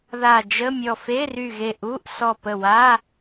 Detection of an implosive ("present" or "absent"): absent